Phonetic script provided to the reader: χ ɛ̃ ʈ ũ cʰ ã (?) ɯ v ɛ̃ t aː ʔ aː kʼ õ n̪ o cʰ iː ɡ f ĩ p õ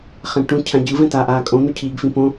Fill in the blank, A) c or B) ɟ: B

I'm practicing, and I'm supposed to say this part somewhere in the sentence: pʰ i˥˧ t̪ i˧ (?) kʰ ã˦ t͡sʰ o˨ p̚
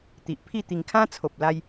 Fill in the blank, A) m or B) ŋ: B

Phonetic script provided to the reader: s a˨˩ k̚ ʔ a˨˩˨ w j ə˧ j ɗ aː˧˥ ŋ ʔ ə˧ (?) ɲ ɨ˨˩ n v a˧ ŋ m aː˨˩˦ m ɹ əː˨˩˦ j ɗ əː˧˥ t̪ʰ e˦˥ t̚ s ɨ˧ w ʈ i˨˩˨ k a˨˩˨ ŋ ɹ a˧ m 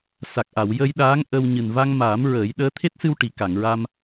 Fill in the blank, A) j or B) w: B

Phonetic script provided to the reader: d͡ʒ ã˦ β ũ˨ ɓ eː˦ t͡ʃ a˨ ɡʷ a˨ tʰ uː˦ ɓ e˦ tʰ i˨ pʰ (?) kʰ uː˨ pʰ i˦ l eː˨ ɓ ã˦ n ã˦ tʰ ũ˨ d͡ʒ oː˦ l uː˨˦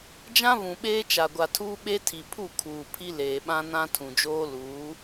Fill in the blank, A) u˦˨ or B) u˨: A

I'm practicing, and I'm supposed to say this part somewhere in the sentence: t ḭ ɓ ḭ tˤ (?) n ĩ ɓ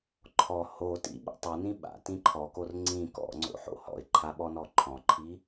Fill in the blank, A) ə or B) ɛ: B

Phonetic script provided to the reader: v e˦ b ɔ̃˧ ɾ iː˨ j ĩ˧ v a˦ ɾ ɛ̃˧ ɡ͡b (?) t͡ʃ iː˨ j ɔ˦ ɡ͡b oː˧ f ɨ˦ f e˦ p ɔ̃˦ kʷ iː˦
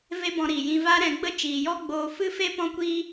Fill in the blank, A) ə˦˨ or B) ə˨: A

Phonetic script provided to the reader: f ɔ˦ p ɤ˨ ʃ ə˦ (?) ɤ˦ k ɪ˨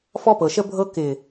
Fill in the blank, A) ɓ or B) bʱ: B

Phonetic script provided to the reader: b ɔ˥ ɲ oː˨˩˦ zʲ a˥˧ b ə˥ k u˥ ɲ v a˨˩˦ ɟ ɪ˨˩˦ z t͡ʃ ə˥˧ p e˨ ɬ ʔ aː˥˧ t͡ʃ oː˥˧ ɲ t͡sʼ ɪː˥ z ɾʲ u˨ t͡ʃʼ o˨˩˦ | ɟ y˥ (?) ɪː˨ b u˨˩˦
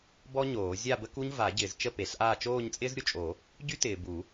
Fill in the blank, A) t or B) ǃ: A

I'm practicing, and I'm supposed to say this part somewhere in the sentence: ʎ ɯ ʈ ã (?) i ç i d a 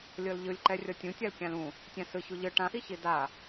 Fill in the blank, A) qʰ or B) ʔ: B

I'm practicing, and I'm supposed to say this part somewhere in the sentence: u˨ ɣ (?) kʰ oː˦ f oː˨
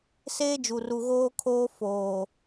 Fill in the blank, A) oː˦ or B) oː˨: A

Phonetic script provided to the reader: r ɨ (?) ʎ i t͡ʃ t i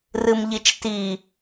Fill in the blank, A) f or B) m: B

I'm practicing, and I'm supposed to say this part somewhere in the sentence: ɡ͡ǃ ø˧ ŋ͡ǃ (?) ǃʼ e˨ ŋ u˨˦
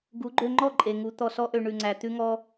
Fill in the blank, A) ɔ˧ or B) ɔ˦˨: B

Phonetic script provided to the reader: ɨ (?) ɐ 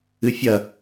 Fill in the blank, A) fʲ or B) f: A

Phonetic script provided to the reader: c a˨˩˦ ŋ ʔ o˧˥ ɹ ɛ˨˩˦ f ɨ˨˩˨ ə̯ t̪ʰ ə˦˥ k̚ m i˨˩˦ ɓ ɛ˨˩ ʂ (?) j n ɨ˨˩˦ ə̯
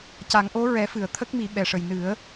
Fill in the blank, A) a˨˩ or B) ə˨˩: B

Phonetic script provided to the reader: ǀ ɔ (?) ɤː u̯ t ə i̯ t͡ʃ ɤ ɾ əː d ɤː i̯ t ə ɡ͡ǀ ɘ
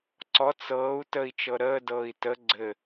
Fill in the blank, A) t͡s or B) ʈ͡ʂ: A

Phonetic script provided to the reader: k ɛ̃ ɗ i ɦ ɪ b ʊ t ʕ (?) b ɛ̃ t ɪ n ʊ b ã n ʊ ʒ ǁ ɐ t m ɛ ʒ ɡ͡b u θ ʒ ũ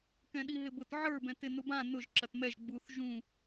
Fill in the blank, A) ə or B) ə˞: B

